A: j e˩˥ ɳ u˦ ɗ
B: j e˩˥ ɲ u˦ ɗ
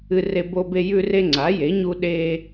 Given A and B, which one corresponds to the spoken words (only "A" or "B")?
B